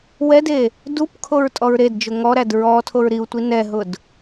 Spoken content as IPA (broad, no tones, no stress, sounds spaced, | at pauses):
w ɛ d e | d u p kʰ o ɹ tʼ ɔ ɹ ɾ e d d͡ʒ ʊ ŋ ɔ ɾ æ d ɹ ɔ tʰ o ɹ ɾ i u̯ tʷ i n ɛ ɦ ʊ d